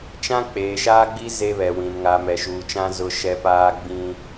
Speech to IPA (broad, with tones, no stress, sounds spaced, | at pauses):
t͡ʃ ã˦ k͡p eː˨ ʃ aː˦ ɡ͡b i˦ z e˦ β ɛ˨ w ĩ˨ n ŋ a˨ m ɛ˨ ʃ uː˨ t͡ʃ ã˦ z ʊ˦ ʃ ɛ˦ p aː˦ ɡ͡b ĩ˦